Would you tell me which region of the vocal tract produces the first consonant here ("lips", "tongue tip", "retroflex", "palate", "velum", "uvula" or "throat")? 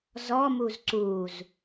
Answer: tongue tip